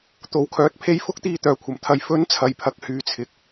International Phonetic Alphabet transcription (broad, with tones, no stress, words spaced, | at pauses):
t̪o˨˧wkʰœː˨˥t̚pʰe˧j fʊ˥k̚t̪iː˧ t̪œː˨kʷʰɐ˨˩mt̪ʰɐ˨˧j fɵ˨˥n t͡sʰɐ˨jpʰɐ˨k̚hyː˨t͡sʰɪ˨k̚